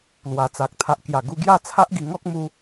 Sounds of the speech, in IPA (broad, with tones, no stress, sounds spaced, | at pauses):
l w a˨˩ t͡s a˨ k̚ t̪ʰ a˨ ʔ k j a˨˩ ɡ u˧ ɡ j a˥˧ t͡sʰ a˦ ʔ ɡ i˧ ŋ ɔ˦ k̚ m u˧